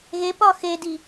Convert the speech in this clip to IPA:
ɣ e p ɒ x e d i

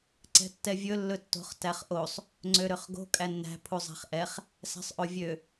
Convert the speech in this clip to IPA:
ǀ ɛ̤ tː ɛ vʲ ɵ lː ɵ tː o̤ χ t æ χ ʔ o sˤ | ŋ͡ǀ ø ɾ ø χ ɡ o̤ kʼ æ nː æ̤ pʰ u zˤ æ̤ χ ʔ ɛ χ | s æ̤ sˤ ʔ o vʲ ø

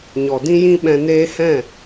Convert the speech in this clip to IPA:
ɲ ɔ˨ d ĩ˦ j ĩ˦ ɓ ɛ̃˧ n eː˦ h ɛ̃˦˨

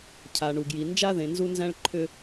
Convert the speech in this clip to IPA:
cʰ a˨ ɳ u˨ ɡ j i˨ n d͡ʒ a˦ ð ẽ˨ n z u˦ n z æ̃˦ ɭ ǃʰ ʏ˦

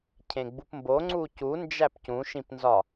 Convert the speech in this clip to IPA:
cʰ ẽ ɡ͡b u p m b o ŋ͡ǀ u c u n d͡ʒ æ p c ũ ʃ ĩ p n z ɒ

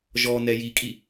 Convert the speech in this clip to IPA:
ʒ ɔ n ɛ j i kʼ i

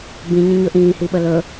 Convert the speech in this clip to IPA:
b ĩ ɲ ə̃ ɲ ɵ ʔ ĩː h i ɓ ə l ɵ

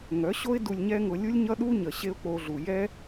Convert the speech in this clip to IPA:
ŋ œ˨˦ ɕ o˦ ɪ̯ d u˧ lʲ ɲ ɛ˦ ŋ ʊ˧ lʲ u˦ lʲ ɲ ʌ˦ ɗ u˦ ɲ ə˨ ɕ e˦ ʊ̯ k͡p o˧ ɮ u˨ j ɛ˦

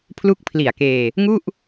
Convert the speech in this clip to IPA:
pʰ l u˦˥ k̚ pʰ l i˨˩ a̯ k eː˧ | ŋ u˥˩ ʔ

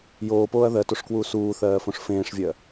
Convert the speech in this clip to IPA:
j oː p oː ɐ̯ ð ɜ t o ʂ k w uː s uː θ ɜː f õ ʂ f ẽː ʂ vʲ ɜ

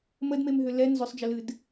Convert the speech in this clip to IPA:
m ə d m e m ɦ ʏ l ɛ n z ʏ sˤ d͡ʒ ə l ɨ d

